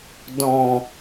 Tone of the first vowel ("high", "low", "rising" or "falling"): low